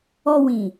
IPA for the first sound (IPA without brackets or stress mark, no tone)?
ɔ